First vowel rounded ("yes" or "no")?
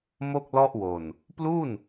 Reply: yes